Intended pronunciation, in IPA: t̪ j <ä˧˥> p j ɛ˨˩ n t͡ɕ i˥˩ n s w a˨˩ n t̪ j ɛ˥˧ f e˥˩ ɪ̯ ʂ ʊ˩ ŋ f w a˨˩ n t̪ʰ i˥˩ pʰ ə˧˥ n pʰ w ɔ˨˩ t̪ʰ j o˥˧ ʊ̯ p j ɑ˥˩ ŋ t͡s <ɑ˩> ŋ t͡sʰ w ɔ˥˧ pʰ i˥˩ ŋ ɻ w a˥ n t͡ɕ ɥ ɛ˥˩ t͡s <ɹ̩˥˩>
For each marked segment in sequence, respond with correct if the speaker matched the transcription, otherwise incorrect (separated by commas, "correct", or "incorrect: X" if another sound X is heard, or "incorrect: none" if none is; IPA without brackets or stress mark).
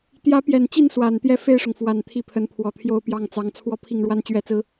correct, incorrect: ɑ˧˥, incorrect: ɹ̩˥